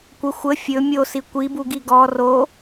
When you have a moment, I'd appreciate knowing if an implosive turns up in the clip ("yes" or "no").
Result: no